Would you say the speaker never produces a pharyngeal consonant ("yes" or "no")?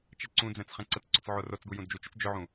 no